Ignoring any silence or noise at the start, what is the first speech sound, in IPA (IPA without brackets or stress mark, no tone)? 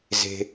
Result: z